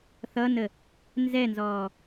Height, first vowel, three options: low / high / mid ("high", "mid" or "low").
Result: mid